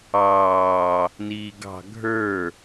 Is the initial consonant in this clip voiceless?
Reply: no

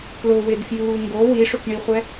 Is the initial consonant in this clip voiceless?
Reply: yes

